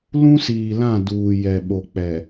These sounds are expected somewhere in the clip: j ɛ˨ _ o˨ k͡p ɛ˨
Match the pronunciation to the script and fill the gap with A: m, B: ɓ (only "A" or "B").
B